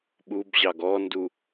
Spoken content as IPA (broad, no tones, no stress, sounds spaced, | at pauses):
ɓ u b ʑ ɑ ɡ ɔ n d u